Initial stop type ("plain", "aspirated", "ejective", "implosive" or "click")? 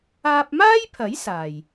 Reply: plain